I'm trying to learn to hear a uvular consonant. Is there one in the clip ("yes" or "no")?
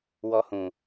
no